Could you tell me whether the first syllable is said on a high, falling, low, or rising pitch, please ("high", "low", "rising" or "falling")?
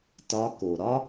rising